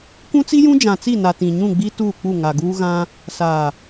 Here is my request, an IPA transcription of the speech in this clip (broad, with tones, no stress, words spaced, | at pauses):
kũ˦t͡si˦jũ˦ d͡ʒã˨t͡si˦˨na˨ tĩ˨ ɲũ˦˨ɡ͡bi˦ tuː˦˨k͡pu˦˨ ŋa˨ɡuː˦ ɣã˦ | saː˨